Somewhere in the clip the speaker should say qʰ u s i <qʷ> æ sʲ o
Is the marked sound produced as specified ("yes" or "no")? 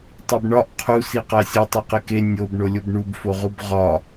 no